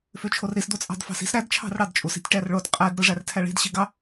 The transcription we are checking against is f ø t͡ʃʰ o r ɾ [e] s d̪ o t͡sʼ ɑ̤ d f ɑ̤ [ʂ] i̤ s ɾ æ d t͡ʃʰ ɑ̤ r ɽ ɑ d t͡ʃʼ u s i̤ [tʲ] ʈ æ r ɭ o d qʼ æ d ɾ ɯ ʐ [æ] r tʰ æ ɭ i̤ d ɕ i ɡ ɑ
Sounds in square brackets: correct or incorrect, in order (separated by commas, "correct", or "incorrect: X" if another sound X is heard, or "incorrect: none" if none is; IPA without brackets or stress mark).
incorrect: i, incorrect: s, correct, correct